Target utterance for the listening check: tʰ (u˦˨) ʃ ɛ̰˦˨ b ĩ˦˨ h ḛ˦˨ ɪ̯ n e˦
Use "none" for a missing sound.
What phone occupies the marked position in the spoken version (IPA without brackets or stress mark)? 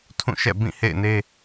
ũ˦˨